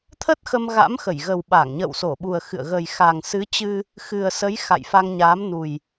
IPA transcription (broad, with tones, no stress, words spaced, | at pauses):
t̪ʰə˦˥t̚xə˧m ɣa̰˧˥mxə˧˩jɣə˨˩wɓa˧˩ŋ ɲə̰ː˧˨wso˧˩ɓu˨˩ə̯xɨ̰˧˨ə̯ ɣə˨˩jxa˨˩ŋsɨ˨˦t͡ɕɨ˧ | xɨ˨˩ə̯sə˨˦j xa̰˧˨jfa˧ŋɲa˨˦m nu˨˩j